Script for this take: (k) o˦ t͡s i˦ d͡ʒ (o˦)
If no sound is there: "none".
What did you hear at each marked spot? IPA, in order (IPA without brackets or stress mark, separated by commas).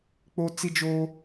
k͡p, oː˦